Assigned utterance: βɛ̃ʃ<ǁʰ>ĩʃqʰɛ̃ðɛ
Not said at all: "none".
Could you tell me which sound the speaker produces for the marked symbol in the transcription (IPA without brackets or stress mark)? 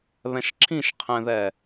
ǁʰ